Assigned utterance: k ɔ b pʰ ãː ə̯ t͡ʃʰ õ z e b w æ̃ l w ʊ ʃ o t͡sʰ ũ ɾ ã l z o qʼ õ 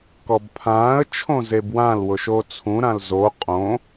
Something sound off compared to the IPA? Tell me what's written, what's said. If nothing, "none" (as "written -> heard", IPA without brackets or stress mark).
æ̃ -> ã